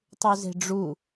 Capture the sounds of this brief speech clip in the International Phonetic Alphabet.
tˤ u z e̤ ɖ͡ʐ u

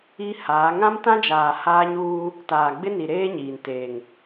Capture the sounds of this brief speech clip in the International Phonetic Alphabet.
i˦ h aː˨˦ ŋ ã˦ m t ã˦ d͡ʒ aː˨ h aː˦ ɲ uː˦ | t aː˨ ɡ͡b ɪ˦ n i˨ ɾ eː˦ ɲ iː˨ n t eː˨ ŋ

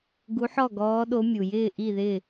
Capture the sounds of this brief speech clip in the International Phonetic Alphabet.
ɡ u˧˥ ħ ɔ˥˨ ɡ ɔː˧˥ ɗ o˧˥ mʲ u˩ j ɪː˥˨ ʔ i˥˨ ð ɪ˥˨

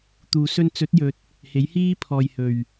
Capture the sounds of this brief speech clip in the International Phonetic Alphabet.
t̪ uː˨ s ɵ˧ n t͡s ɵ˨˥ t̚ j ɵ˨ t̚ | h e˨˥ j h iː˥ pʰ ɔː˨ j h ɵ˨˩ ɥ

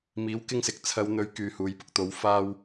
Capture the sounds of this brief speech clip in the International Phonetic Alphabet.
m iː˨˥ w k ɪ˥ ŋ s ɪ˨ k̚ t͡sʰ ɐ˨˧ w n̪ ɵ˨˥ ɥ k yː˨ h uː˨˧ j p ʊ˧ k̚ t̪ o˨˥ w f aː˧ w

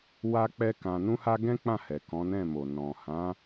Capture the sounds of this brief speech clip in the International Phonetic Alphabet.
w a˦ k͡p ɛ˦ k ã˧ n ũ˦ h a˦ ɡ ɛ̃˦ k͡p ã˦˨ h ɛ˨ k ɔ̃˨˦ n ɛ̃˦˨ m o˨ n ɔ̃˨ h ã˨˦

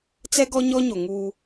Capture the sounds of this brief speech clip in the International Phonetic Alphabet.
t͡s ɛ˦ ɡ ɔ˦ ɲ ɔ˦ ɲ o˨ ŋ u˦

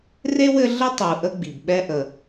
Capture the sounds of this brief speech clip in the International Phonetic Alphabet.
r e˥ w ɘ˦ ɮ ə˥ tˤ u˨ ʔ ə˦ ɡ͡b i˩ b ɓ ɛ˦ ʔ ə˨

